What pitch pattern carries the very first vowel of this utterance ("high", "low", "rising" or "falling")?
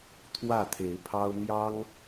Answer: falling